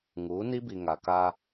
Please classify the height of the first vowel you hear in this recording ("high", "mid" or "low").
high